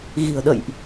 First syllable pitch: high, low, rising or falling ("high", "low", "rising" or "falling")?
low